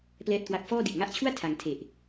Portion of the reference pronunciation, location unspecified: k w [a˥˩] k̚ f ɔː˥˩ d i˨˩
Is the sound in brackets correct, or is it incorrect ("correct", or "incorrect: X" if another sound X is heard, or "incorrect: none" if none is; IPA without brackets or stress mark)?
incorrect: a˦˥